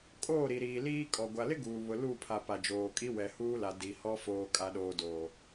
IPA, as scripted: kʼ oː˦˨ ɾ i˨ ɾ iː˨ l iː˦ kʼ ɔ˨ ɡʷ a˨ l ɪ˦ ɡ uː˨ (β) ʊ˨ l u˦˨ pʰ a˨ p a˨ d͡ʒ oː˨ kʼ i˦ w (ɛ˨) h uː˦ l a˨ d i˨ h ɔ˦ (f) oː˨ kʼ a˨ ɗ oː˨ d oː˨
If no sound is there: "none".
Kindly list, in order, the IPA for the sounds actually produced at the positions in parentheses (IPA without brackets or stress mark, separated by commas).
β, ɛ˨, f